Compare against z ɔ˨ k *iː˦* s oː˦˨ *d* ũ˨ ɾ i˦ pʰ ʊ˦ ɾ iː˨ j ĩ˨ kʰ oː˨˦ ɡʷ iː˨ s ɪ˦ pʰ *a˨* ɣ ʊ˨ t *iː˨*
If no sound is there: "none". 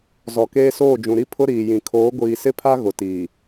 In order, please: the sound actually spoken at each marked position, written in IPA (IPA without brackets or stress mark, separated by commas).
eː˦, d͡ʒ, a˦, iː˨